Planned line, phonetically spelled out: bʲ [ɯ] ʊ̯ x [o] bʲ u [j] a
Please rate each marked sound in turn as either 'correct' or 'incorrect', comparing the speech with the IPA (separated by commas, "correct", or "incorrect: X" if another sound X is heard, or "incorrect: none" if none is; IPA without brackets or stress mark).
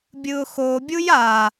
correct, correct, correct